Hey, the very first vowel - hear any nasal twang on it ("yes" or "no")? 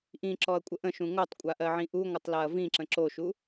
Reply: yes